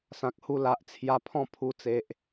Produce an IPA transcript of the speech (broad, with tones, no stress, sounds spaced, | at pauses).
s ã˨ k̚ h u˧ l a˨ ʔ t͡sʰ j a˧ pʰ ɔ̃˥˧ pʰ u˧ t͡s e˨ ʔ